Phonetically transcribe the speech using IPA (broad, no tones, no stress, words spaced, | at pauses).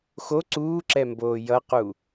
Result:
xo ǀuːǁɛmboː jʌqu